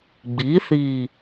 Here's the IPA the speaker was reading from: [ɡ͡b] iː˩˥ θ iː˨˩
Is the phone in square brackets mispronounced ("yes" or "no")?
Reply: no